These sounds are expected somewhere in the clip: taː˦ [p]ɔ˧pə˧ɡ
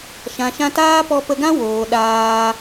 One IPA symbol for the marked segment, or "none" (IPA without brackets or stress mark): p